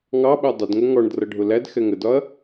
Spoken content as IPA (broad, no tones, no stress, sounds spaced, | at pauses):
ŋ ɑ ɓ æ dˤ ʊ d ŋ ʊ ŋ ɔ ɳ d r ʌ ɖʱ ʊ l æ d x ɛ ŋ ə d ɒ ɐ̯